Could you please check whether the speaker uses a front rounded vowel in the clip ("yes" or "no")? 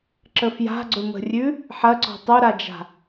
no